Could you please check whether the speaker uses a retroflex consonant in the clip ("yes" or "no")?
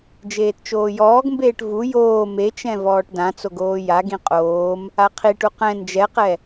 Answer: yes